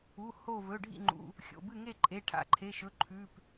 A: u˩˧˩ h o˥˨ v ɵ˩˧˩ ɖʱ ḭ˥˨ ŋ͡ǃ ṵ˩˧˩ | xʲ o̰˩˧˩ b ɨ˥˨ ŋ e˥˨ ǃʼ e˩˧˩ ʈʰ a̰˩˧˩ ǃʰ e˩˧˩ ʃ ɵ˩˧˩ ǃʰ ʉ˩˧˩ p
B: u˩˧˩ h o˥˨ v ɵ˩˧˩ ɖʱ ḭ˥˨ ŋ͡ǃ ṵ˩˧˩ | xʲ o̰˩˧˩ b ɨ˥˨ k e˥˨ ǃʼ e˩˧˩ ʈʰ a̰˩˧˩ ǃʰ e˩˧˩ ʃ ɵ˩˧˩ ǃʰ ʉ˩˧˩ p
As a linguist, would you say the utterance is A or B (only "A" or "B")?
A